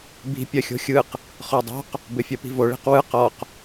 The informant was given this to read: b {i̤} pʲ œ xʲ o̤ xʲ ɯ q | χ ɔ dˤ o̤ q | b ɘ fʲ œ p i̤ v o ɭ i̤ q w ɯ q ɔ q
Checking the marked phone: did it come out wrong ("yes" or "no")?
no